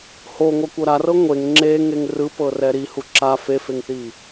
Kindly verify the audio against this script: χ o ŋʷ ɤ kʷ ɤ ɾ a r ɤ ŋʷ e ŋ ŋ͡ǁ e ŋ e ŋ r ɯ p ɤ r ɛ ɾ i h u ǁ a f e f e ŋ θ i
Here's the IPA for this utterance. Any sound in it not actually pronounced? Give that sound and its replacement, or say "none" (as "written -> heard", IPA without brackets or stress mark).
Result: χ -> h